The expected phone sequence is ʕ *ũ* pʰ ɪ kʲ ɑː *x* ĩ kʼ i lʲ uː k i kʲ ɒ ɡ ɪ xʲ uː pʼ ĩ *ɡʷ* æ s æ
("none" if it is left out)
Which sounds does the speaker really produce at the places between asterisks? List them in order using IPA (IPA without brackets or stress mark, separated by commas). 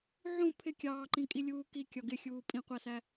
ũ, ǃ, qʷ